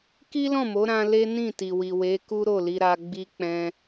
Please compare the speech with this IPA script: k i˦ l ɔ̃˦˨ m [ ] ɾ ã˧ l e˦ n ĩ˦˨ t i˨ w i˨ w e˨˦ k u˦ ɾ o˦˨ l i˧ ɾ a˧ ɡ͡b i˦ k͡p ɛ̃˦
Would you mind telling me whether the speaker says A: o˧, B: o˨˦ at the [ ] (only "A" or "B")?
B